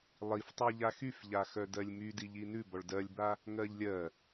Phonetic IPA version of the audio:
lˠ i f tˤ y ʎ a x y f ʎ a x œ d ɜ lʲ m y d i ʎ i n ʉ b ɔ ɭ d ɜ lʲ b a | ŋ ɜ ʎ lʲ ɜ

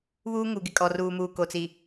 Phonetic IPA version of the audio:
β uː˦ ŋ u˨ ɡ ɪ˨ kʼ ɔ˨ r uː˨ m uː˨ k o˨ t͡s i˨

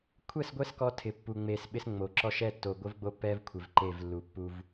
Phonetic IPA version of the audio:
kʷʰ ɛ˦˨ s ɡʷ ɛ˦ s k ɔ˦ tʰ ɪ˨ pː u˨ ŋ͡m e˨ s ɓ ɪ˦ s ŋ͡m o˨ ǁ ɔ˦ ʃ ɛ˦ tː o˨ ɡʷ ɪ˦ v ɡ͡b o˦ pː ɛ˦ v kʷʰ ɪ˨ v ǃ e˦˨ v lː u˨ pː u˦ v

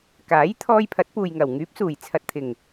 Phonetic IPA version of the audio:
k aː˨˥ j t̪ʰ ɔː˧ j pʰ ɐ˨˥ t̚ p uː˨ j ŋ ɐ˨˩ w ŋ yː˨˥ p̚ s uː˨˩ j t͡sʰ ɐ˨ t̚ t̪ʰ ɪ˨˩ ŋ

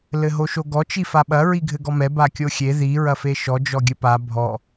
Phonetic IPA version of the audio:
l ɘ ɦ o ʃ o ɡ ɔ t͡ʃ i f a ɓ ɐ ɹ i ɡʱ ɘ ɡ ɔ m ɛ b a kʲ o xʲ e ð i ɹ ɐ f e ʃ ɔ d͡ʒ ɔ ɡʲ ɘ p a bʱ ɔ

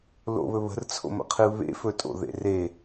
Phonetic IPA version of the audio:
l o̰ β ɵ β ə̤ r t͡sʰ o̰ m ə̰ qʰ ɨ β ḛ f ɵ tʼ o̰ ð ḛ r e

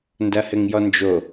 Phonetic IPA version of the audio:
n d ɐ h ɘ ŋ j ɔ n d͡ʒ o

